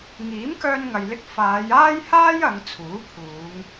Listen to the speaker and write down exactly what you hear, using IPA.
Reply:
ŋiː˨˥mkœː˧nŋɐ˨jlɪ˧k̚ faː˨˧jaː˥j haː˥jɐ˨˧ŋ t͡sʰuː˨˥ pʰuː˨˧ŋ

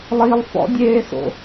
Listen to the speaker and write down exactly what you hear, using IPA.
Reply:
lˠilˠfɔ̰dʲeːso̰

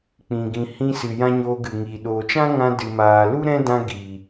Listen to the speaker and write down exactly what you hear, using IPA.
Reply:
k͡pĩ˨ɡĩ˨ hĩ˧sɨ˨jã˧ ɲoː˧ɡɨ˨ŋiː˨ ɗoː˨t͡ʃã˦ŋã˧ dɨ˨maː˨ lu˦ɾɛ̃˦dã˧ ɡiː˨

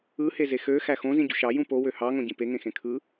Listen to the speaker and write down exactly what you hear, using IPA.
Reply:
ɯheze xøxæ xõzĩɟṳ ʃɑjũ powø hɑŋõɟĩ peŋẽxẽ kʰɯ

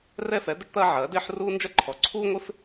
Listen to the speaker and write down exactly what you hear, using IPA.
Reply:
rɛ˥fɛ˨˥ d̪ɪ˥ʈt̪ɐː˥ʕɐː˨˥dɪː˥ħ ruː˥nd͡ʒɐ˥ǃʰɔ˨˥ ǀʰuː˥ŋʷɪ˥f

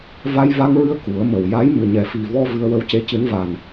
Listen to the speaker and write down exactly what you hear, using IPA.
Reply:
va˧jva˧ŋɹɨ˧ə̯ ku˨˩˦ə̯mə˨˩wja˧˥j mɨ˨˩ɲɛ˨˩fi˨˩vɔ˧ vɨ˧ə̯wə˧˥wce˧˥cɨ˧˥n va˨˩n

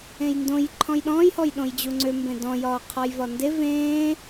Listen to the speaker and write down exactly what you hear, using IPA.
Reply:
ẽjndõj ǃʰɔ̃jɗɔ̃ːj hɔjɗõjd͡ʑuŋ͡ǀʏ mbẽdɔ̃ jɒːqʰɒjvɒnde vẽː

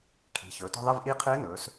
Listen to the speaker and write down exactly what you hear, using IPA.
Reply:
kʰi̤˩˧ çɵː˩˧tɔ̤˥˧ðˤi˥˧vʔiː˥˧ qʰɨː˧˥nɵː˩˧s

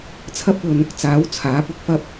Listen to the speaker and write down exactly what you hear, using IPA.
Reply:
t͡sʰɐ˥p̚ɵ˧n | t͡saː˨˥w t͡sʰaː˨˥pʊ˥k̚fɐ˥p̚

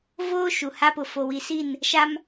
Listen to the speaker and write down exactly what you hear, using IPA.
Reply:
voː˦ ʃu˨ha˦pʊ˨ fo˨wi˨si˦˨n | ʃa˦m

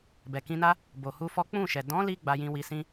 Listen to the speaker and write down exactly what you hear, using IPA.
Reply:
bɛ˨kĩ˧na˦ | bo˨hu˧fɔ˦ k͡pũ˦˨ʃɛ˨ dɔ̃˨˦li˧ ɡ͡ba˧jĩ˧wi˧sĩ˦

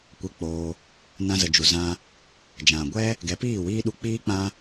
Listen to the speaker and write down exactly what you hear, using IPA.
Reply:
kʷɛ˧k͡poː˧ | nã˧zə˨d͡ʒu˨ zã˧ | d͡ʒã˨ɡʷɛ˦ | ɡɛ˨˦piː˦˨wiː˦ ɗu˧k͡piː˦k͡pã˦

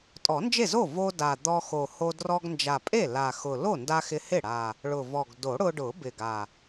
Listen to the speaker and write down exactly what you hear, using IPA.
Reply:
tʼɔ˨˩˦nd͡ʒe˥˩zo˥˩ vo˧ da˨˩ d̪ɔ˧xo˨˩ho˧ drɔ˧ɡnd͡ʒa˨˩pʼe˥˩ la˨˩xʊ˨˩ lo˥˩nda˧ xɪ˧hɪ˥˩ ɽa˨˩ | ɭʊ˨˩vɔ˨˩ɡ do˨˩˦ɽʊ˧ɖʊ˨˩˦ bɪ˨˩ɡa˨˩

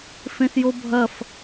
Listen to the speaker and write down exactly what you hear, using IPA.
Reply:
fẽsjobʱɐf

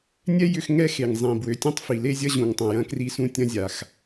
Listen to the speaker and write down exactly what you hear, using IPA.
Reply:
nʲɛ˥ jʏ˥x ŋɛ˥xe˩ŋzˤĩ˩ bwø˩tʲɐ̃˥tˤfi˩ le˥zʲɐ˥ʑũ˩ŋtˤɐ̃˩ jɐ̃˥kri˥sũ˥ tʲɐ̃˥zʲa˩x

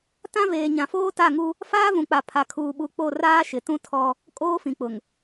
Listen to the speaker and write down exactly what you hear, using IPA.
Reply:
tã˦ veː˨ɲã˨foː˦ ta˦˨ŋu˦ | faː˦vũ˨k͡pa˨ pʰa˨kʰuː˨ɓu˨ k͡po˦˨raː˦ʃɪ˨tũ˦ tʰɔ˦ | kʼoː˦fĩ˨k͡pʊ˨ŋ

